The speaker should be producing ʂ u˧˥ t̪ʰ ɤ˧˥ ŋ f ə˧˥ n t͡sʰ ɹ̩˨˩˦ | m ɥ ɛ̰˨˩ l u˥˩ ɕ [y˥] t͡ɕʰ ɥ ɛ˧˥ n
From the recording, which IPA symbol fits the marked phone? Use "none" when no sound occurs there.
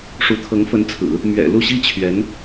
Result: i˥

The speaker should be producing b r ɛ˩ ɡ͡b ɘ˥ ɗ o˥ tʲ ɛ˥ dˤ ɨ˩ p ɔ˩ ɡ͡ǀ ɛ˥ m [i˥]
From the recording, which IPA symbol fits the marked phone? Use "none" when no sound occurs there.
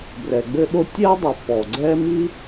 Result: i˥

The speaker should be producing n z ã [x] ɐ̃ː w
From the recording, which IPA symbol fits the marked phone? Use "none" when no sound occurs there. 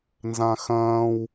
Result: x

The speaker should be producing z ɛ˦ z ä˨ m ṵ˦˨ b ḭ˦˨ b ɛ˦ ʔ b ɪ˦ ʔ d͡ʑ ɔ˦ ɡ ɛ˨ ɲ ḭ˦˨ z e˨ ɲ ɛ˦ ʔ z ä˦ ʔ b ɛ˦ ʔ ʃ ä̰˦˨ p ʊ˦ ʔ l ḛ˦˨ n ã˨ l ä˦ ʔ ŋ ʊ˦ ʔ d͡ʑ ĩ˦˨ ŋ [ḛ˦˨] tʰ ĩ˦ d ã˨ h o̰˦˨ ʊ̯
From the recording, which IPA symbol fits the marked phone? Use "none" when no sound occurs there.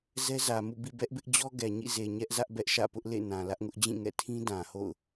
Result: ɛ̰˦˨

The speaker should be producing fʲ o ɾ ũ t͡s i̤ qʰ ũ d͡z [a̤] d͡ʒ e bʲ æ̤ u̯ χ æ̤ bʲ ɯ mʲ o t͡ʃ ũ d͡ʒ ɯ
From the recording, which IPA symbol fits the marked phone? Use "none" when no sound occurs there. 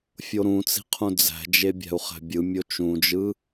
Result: æ̤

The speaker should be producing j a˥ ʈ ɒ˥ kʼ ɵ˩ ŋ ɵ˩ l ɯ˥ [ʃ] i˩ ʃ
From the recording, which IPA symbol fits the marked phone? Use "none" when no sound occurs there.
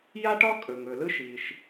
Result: ʃ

